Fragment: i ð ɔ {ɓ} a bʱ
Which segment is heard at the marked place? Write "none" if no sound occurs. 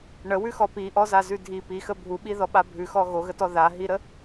ɓ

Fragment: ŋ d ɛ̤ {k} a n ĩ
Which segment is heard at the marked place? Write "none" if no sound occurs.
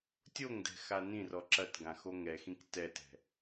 x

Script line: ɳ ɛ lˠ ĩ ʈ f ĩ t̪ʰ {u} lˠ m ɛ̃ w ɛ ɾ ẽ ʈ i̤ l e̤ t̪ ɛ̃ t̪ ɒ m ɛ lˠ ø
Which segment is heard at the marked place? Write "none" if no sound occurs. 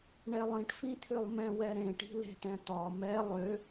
ø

